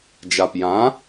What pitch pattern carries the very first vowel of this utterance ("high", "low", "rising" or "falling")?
low